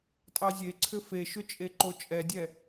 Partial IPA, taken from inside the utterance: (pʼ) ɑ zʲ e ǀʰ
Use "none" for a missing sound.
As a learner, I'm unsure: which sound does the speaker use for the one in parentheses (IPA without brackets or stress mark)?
tʼ